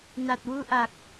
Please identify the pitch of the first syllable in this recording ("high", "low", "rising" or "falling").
low